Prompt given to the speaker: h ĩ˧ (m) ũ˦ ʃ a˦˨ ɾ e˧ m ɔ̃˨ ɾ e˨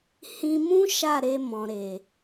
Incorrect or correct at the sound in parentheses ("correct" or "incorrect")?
correct